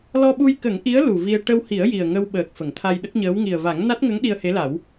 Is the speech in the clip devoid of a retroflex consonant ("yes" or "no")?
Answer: no